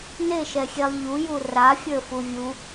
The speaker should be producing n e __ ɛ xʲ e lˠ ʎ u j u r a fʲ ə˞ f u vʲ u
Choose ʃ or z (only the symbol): ʃ